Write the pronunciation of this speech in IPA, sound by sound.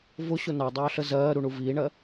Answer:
v ʊ ɕ ʊ n ɑ dˤ ɑː ɬ ə z ɜː ɾ u ɳ u v iː ɳ ɜ

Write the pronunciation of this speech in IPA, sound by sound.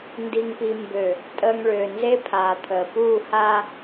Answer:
n d i˨ ŋ p i˨ m b ø˨ | tʼ əː˨ ŋ ɭ øː˨ n z e˦ pʰ aː˨ t̪ʰ əː˨ p uː˦˨ h aː˦

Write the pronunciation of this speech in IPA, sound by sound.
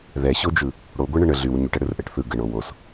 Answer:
ð ɛ ɕ o d͡ʒ ɯ | ɽ o ɡʷ ɛ ɳ ə ɳ ə ɮ y w ɲ y ʈ ɛ ɽ ɯ r ʔ ɛ ʈ θ ɯ ɡ ə ɳ o w o s

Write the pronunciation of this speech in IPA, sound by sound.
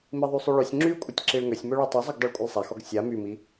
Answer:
m i ðˤ y sˤ y ɭ ø sʲ ŋ͡ǁ y kʷʼ ə tʲ ǁ i ɭ ŋ ø sʲ m ø ɭ y tˤ o zˤ y ɡ dˤ o ɭ kʷʼ ə lˠ sˤ a x ɔ ɡ sʲ a m y m i

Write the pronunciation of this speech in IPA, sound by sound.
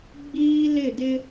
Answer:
ɡ͡b iː˦ l ɪ˦˨ d ɪ˦

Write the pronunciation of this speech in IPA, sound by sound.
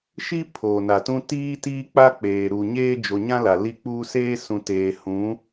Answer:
ʃ i˦ pʰ oː˨ n a˨ t ũ˦ t iː˦ t iː˦ k͡p a˦ k͡p eː˨ ɾ u˨ ɲ eː˦ d͡ʒ o˨ ɲ ã˦ l a˨ l i˦ k͡p uː˦ s eː˦ s ũ˨ t eː˨ h ũ˨˦

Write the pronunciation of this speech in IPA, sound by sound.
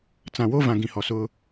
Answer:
t͡s ã˨ w o˦ v ã˨ ɡ ĩ˨ h ɔ˨ s ʊ˦

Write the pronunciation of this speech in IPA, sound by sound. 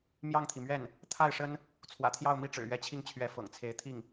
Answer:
m j ɑ˥˩ ŋ t̪ʰ i˩ m ɥ ɛ˥˩ n | t̪ʰ a˥˩ ɪ̯ ʂ ə˥ n | t͡sʰ w ä̰˨˩ t̪ʰ j ɑ˥˧ ʊ̯ m i˥˩ ʈ͡ʂ ɻ̩˨˩ ɥ ɛ˧˥ t͡ɕʰ i˥˩ ŋ t͡ɕʰ ɥ ɛ˧˥ f ɤ̰˨˩ ŋ t͡sʰ e˧˥ ɪ̯ t̪ʰ i˥˩ ŋ

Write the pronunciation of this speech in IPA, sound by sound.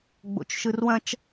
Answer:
ɡ͡b o̰ t͡ʃ ʃ ɯ r w ɐ̃ t͡ʃ

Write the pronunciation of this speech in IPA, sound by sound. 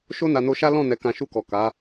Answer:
ʃ o˦ n a˧ n o˧ ʃ a˦ l ɔ̃˦˨ n ɛ˧ k ã˧ ʃ u˧ k ɔ˨ k a˨˦

